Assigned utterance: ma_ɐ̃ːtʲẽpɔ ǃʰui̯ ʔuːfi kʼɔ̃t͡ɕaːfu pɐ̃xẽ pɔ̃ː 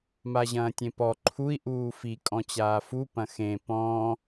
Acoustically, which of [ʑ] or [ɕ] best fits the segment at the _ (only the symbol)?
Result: ʑ